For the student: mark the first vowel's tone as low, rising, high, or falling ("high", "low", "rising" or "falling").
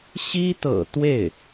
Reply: high